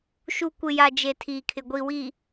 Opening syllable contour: low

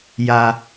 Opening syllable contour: low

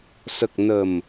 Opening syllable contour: low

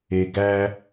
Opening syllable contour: low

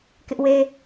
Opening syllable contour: high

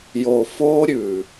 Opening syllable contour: low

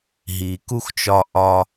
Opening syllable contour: low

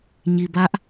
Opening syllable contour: low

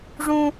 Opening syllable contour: high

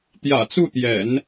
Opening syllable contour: low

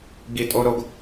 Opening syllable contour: low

